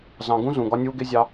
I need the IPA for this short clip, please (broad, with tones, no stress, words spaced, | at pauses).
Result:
zɑ̃˨ ɡũ˦zũ˨ ɡɒ˦nʲuː˦ ɡɪ˦zʲɑ˦